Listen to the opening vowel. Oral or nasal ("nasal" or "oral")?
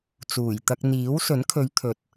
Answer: oral